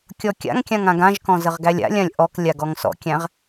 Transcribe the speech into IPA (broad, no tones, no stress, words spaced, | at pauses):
kʲɔkʲa̰ŋkʲãŋ ãɡãʒkɔ̃ zəʁɡælʲa̰lʲãlʲ ʔɔk lʲaɡɔŋsɔ̰kʲæ̃ʁ